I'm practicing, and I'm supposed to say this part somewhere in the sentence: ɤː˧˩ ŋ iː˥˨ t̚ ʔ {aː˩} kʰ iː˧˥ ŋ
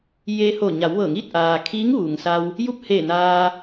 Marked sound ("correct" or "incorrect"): correct